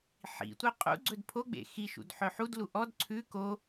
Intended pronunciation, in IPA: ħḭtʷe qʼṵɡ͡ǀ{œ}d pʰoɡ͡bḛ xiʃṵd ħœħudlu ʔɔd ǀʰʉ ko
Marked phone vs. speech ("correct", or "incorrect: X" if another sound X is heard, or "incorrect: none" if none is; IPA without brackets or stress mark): incorrect: ɵ